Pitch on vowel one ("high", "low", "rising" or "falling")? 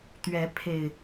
rising